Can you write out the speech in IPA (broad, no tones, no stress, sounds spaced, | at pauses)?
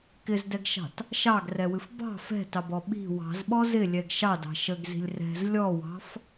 k ɪ z d ɛ ɡ ʃ ɑ̤ t | ʃ ɑ ɡ r ɛ w ɨ f b ɑ̤ f ɛ̤ t ɑ b ɔ ɓ i̤ w ɑ̤ z ɓ ɔ z ɪ lʲ ɛ ɡ ʃ ɑ d ɑ̤ ʃ ə ɡ z i̤ lʲ r ɛ̤ z lʲ ɔ w ɑ̤ f